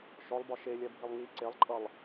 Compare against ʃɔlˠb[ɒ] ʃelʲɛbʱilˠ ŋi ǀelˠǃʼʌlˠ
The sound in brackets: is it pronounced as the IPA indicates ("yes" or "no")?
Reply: yes